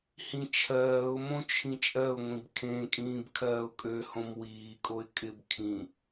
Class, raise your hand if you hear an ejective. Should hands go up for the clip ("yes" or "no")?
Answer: yes